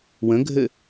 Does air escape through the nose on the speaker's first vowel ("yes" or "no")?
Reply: yes